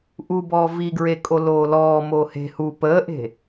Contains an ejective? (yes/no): yes